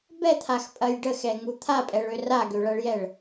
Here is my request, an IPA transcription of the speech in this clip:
b ɛ t̪ʰ a x pʼ ɐ j ɖ ə x ɛ ŋ u t̪ʰ a pʼ ɛ ɭ ø r a ɡ ø ɭ ɐ ɭ j ɛ ɭ

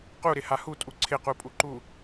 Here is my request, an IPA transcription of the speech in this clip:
q u ɾ ɪ h a h u tʼ u ǀʰ ɪ q u pʼ u ǃ u

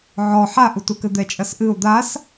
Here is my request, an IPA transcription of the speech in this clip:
ʕ ɔ ħ a ʔ u t u k ɘ d̪ ɛ t͡ʃʼ ɐ s ʔ ɨ ʊ̯ d̪ a s

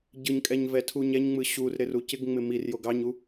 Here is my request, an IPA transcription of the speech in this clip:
ɟ ɯ ɲ kʼ ɛ ɲ v ɛ tʰ u ɲ ɛ ɲ ŋ͡m ɯ ɕ u r ɾ ɪ r u c ɪ ɡ ŋ͡m ɪ m i r j o ɡ ɑ ɲ u

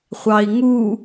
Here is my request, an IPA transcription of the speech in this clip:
χʷ ɑ i̯ ŋ u

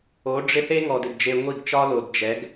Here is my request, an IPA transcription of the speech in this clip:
o˨˦ ɖ͡ʐ ɪ˦ θ e˦ ŋ ɔ˨ d ɪ˨ d d͡ʒ e˧ ŋʷ i˦˨ ɡ t͡ʃ ɒ˦ l o˨ d d͡ʒ ɛ˨˦ ɡ

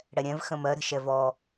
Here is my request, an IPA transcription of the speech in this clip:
ɽ ɛ ɾʲ ɛ̃ v x ə̃ m ɜ ɾ ə̤ ʃ ɛ v ɔ

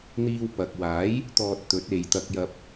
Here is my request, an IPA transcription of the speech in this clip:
n̪ iː˧ w p ɐ˨ k̚ w aː˨˥ j | t̪ ɔː˧ t̚ t̪ ɵ˨˥ t̚ e˨ j t̪ ɐ˧ k̚ j ɐ˧ p̚

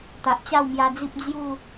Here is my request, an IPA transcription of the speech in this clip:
t̪ a˨ ʔ t͡ɕ a˥˧ w m j a˧ d͡z i˦ p̚ d͡z j u˥˧

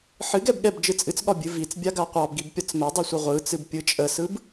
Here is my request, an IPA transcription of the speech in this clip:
ħ ɨ ɡ ɛ b ɠ ɛ b d͡ʒ ɯ t͡sʼ ɨ t͡s ɠ ɒ bʲ ɨ v i t͡s bʲ a ɡ a qʷ ɑ b ɡ i b pʲ ɒ t͡s m ɛ dˤ i sʷ ə ʁʷ ɯ t͡s ɨ b pʲ ɯ t͡ʃʼ ə s ɯ b

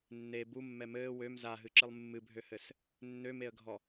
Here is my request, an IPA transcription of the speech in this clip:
nː e b u mː ɛ m ɘː w ø m z a ɦ ɨ ǁ ɨ lˠ mː ɨ bʱ ø h ɘ s | nː ø m e ə̯ ɡʱ ɔ

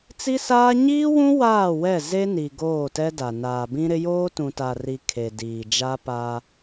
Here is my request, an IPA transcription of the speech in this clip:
t͡s i˦ s aː˦ ɲ iː˦ w ũ˦ w aː˦˨ w ɛ˦˨ z e˦ n i˨ ɡ oː˦˨ t ɛ˦ d a˨ n aː˨ b ĩ˦ ɾ ɪ˦ j oː˦ t ũ˨ t a˨ r i˨ kʰ e˨ d iː˨ d͡ʒ a˦ p aː˦

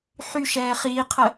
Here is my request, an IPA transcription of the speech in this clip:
ħ y ʃ ɛː χ iː qʰ ə

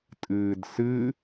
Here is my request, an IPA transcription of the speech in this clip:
tʼ ɨː d s ɨ

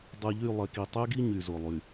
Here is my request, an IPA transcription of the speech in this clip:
dˤ ɨ˨ ʎ y˦˨ lˠ e˨ k i˨ tˤ y˦ ɡ i˦ ɲ y˨ z o˨ lˠ y˨

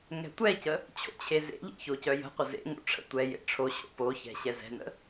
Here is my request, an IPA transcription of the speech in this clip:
ŋ ɛ̤ tʷ ɛ c ə | t͡ɕʰ o̰ t͡ɕʰ e z ḛ ʎ ḛ ç o c œ j ə̤ qʷ ə z ḛ ŋ o̰ ʈ͡ʂʰ ə̰ tʷ ɛ j ḛ ʈ͡ʂʰ o ɕ o̰ p o ç ɛ̤ ɕ ɛ z ɛ̤ n ə̰

